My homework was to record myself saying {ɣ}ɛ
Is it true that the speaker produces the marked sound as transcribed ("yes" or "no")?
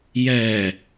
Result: no